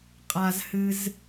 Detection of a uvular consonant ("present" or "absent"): present